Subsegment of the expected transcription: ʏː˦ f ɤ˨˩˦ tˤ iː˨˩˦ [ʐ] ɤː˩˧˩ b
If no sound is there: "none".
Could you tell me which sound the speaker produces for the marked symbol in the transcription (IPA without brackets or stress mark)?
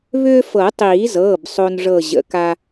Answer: z